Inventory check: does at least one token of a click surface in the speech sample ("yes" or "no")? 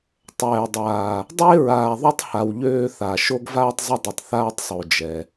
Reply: no